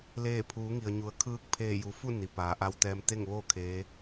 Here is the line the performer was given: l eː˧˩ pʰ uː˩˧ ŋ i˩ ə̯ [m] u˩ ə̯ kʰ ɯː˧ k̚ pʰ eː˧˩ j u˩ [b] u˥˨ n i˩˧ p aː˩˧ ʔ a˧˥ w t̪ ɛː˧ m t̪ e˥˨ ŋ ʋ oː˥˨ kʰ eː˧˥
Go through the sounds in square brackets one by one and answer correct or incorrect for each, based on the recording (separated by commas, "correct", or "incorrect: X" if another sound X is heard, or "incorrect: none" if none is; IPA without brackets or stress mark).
incorrect: ɲ, incorrect: f